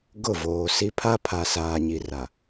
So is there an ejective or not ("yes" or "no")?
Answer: no